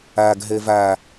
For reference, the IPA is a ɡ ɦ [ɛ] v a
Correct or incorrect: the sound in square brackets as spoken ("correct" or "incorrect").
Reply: correct